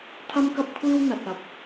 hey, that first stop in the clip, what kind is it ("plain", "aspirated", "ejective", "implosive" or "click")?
aspirated